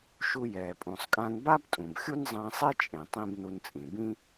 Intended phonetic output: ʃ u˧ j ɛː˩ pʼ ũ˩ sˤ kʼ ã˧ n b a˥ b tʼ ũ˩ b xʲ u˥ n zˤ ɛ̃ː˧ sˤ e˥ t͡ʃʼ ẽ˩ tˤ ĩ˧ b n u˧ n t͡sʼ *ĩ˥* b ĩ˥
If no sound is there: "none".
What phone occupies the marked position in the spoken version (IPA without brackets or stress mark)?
ĩ˩